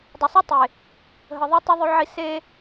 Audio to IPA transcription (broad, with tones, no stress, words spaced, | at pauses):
dˤə˨sˤi˦tˤe˨ | ɦə˨ðˤe˦ tˤi˦ðˤʉ˦ʕi˦ se˦